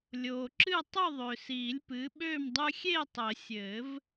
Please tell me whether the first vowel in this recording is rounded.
yes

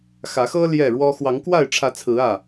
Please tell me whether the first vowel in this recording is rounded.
no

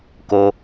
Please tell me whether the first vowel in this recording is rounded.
yes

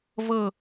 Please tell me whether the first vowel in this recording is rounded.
no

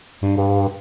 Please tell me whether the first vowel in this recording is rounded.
yes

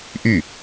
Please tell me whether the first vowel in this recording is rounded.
yes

